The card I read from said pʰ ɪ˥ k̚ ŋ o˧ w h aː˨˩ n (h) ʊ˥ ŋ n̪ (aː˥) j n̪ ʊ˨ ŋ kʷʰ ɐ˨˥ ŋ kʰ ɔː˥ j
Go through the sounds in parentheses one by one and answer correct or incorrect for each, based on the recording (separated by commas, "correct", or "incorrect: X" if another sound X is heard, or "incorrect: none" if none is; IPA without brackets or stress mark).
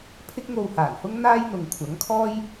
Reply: correct, correct